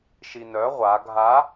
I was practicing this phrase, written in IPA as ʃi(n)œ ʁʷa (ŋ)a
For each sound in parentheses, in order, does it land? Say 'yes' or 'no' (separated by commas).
yes, no